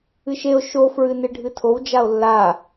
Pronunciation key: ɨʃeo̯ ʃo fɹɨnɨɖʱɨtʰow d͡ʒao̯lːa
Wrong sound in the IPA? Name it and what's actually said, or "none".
none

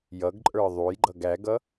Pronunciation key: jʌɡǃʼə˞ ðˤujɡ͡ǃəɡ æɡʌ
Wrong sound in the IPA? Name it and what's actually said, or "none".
ə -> ʌ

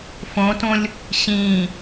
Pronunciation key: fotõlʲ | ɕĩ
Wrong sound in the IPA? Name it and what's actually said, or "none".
o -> õ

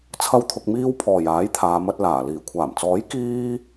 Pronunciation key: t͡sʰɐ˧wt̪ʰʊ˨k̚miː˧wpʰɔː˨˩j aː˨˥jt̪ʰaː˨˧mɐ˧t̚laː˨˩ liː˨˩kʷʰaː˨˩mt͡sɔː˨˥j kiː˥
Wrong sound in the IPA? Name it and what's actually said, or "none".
none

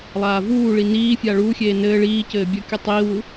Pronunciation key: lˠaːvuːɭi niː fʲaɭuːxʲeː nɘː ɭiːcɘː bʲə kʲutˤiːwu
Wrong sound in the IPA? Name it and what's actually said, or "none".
none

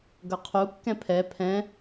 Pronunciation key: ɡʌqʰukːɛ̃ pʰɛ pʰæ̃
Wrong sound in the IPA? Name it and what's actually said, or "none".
æ̃ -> ɛ̃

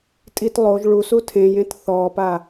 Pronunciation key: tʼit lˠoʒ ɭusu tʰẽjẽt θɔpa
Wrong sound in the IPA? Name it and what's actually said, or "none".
none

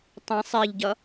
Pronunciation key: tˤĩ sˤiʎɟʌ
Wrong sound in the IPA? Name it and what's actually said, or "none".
i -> e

